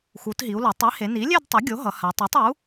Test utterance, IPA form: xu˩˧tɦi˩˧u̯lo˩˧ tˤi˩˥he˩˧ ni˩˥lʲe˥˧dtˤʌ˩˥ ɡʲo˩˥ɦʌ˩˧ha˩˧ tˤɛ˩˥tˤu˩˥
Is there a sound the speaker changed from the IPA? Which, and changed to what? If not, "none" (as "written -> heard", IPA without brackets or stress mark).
none